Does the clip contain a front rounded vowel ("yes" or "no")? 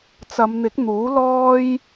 no